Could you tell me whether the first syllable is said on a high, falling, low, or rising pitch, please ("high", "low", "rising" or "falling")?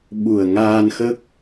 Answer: low